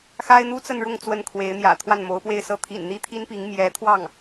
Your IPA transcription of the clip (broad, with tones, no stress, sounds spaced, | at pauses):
x a˥ ɪ̯ n̪ u˥ t͡s ə˥˧ n ɻ ʊ˥˧ ŋ t͡s w ə˥˩ n kʰ w e˧˥ ɪ̯ n̪ j ä̰˨˩ t̪ʰ w a˥˩ n m o˧˥ ʊ̯ p w e˥˧ ɪ̯ s ɤ˥˩ t̪ʰ ḭ˨˩ n n̪ i˥ t̪ʰ i˥ n p i˧˥ ŋ m j ɛ˧˥ t̪ʰ w ɑ˥˩ ŋ